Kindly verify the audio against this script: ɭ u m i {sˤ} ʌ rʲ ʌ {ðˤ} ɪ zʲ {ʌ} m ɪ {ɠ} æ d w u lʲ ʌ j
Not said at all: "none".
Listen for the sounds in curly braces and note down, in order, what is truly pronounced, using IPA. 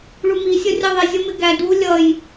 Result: sʲ, ðˤ, ʌ, ɡ

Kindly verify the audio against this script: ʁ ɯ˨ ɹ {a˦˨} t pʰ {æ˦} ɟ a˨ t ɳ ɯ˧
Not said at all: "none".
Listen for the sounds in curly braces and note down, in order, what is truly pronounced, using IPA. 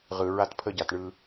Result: a˦, ə˦

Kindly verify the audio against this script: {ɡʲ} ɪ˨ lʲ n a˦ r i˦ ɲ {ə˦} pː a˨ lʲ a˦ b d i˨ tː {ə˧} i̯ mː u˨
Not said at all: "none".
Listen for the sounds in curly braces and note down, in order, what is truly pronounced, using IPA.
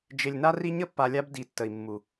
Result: d͡ʒ, ə˦, ə˨

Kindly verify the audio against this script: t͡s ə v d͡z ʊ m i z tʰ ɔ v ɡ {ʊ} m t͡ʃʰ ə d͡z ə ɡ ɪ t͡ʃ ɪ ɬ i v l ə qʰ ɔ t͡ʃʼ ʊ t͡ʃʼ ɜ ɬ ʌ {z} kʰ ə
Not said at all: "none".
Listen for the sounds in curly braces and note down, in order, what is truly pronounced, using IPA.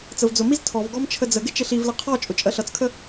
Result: ɔ, t͡s

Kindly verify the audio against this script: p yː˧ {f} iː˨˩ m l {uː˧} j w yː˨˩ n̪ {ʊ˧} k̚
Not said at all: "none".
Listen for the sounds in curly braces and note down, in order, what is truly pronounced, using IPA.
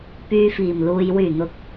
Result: f, uː˨, ʊ˨˥

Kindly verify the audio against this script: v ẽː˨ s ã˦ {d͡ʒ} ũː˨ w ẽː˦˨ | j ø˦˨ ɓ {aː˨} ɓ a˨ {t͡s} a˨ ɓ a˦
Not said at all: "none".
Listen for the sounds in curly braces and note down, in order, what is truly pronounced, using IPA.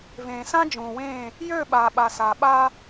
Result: d͡ʒ, aː˨, s

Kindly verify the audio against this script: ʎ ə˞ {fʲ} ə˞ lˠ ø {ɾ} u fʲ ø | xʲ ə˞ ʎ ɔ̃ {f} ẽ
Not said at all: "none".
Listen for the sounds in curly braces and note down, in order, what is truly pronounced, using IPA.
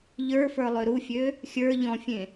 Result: f, ɾ, fʲ

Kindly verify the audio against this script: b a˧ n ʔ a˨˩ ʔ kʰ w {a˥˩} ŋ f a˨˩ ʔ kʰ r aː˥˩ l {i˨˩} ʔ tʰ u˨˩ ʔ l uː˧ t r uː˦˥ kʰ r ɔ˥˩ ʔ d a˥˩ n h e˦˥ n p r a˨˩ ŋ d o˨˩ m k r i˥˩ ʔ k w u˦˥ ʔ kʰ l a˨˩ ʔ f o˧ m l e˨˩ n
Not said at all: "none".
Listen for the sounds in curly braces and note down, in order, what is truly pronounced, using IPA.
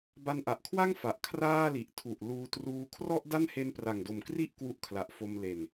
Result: a˥˩, i˨˩

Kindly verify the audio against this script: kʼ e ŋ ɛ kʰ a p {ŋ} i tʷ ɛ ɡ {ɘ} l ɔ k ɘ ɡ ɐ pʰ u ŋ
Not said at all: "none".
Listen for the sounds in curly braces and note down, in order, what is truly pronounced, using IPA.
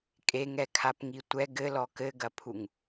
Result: ŋ, ɘ

